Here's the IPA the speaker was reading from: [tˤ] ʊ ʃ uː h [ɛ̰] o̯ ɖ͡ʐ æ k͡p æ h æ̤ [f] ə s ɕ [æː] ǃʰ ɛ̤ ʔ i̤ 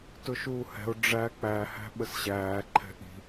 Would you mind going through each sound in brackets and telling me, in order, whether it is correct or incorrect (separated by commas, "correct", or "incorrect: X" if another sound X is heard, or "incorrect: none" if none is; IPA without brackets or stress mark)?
incorrect: t, incorrect: ɛ̤, incorrect: ɓ, correct